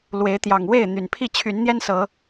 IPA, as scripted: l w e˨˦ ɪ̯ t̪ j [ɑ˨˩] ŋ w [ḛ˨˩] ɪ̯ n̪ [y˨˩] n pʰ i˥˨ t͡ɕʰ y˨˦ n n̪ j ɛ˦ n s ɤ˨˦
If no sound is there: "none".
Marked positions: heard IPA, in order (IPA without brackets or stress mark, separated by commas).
ɑ˨˩, e˥˨, y˨˩